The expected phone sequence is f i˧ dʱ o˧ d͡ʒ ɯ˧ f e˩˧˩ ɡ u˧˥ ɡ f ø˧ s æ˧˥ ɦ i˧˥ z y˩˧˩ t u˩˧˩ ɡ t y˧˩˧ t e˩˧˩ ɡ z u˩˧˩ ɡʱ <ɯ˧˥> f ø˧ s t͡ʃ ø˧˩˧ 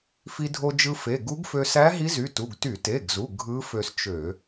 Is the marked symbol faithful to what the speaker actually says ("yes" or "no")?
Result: yes